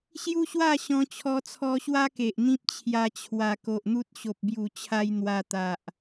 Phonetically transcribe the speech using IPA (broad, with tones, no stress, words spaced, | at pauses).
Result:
ɕju˦ɕwa˥˧ɕɔ̃˧ t͡ɕʰɔ˧t͡sʰɔ˧ɕwa˦ ke˨ʔ n̪ĩ˦p̚t͡ɕʰja˧t͡ɕʰwa˨˩ ko˨ʔn̪u˦t̚ ɕo˨p̚bju˨˩t͡ɕʰa˧j n̪wa˧ t̪a˨ʔ